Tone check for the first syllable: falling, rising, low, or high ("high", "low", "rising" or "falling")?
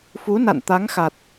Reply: rising